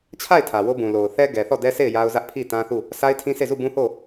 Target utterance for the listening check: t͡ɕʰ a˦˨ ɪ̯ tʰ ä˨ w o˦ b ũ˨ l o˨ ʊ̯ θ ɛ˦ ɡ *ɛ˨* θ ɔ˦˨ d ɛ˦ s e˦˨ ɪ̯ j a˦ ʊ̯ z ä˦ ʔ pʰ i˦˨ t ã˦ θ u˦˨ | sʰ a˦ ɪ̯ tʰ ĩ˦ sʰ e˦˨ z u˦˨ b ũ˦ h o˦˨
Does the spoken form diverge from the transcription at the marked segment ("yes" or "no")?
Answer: no